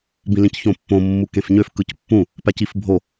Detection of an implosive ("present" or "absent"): absent